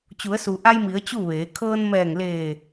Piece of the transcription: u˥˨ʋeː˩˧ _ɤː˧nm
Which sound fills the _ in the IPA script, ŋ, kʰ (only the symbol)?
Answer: kʰ